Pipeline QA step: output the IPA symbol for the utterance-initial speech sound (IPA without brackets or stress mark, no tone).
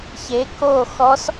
ç